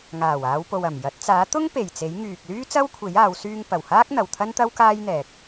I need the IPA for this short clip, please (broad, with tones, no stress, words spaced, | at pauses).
ŋaː˨˩waː˨˧wpo˨w ɐ˨˩mjɐ˨˥t̚ t͡saː˨˥t̪ʊ˥ŋ pe˨˩jt͡se˨˥j ŋyː˨k̚lyː˥ t͡sɐ˥wkʷʰe˨˥jaː˨˧w syː˧ŋpɐ˨˩whaː˥k̚ n̪ɐ˨wt̪ʰɐ˥nt̪ɐ˥w kaː˥jn̪ɛː˨k̚